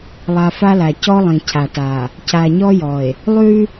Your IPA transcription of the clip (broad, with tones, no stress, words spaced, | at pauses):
lˠa˨ fa˦la˨ cɔ˦lˠĩ˨ cʰa˨ta˨ | ca˨ɲɔ˦ jɔ˨e̯ | lˠʉ˦